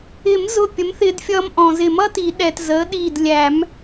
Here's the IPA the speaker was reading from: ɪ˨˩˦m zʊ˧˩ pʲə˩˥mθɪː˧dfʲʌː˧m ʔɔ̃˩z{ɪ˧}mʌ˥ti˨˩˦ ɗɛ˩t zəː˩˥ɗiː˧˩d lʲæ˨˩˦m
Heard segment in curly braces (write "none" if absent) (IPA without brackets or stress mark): ɪ˨˩˦